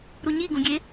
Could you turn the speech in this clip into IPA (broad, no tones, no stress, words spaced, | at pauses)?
ɾuɲiɡũɡʲe